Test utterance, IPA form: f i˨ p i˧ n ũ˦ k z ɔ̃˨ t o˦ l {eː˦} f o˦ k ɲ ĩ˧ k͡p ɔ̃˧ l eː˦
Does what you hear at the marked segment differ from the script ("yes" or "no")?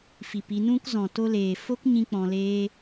yes